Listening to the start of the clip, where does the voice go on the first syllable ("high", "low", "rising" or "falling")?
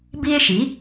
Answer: high